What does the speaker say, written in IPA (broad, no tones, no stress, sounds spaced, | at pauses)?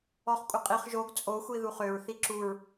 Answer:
ɔ χ kʷʼ ɪ qʼ i χ ʒ o ɡ t͡sʼ o xʷ i ð u χ ø ɹ θ i ǁ u ɹ